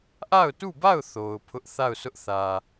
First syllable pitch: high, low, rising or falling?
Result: falling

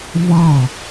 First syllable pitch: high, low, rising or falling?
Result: falling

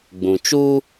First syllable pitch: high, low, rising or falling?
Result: low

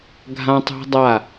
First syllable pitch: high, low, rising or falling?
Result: high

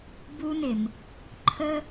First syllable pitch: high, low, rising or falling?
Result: high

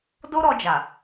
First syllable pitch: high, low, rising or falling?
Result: high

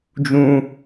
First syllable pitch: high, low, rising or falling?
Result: high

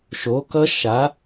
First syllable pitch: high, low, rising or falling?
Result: rising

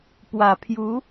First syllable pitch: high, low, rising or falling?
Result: low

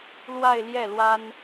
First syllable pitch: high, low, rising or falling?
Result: falling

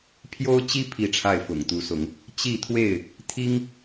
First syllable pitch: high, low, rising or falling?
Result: high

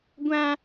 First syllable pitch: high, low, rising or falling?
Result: high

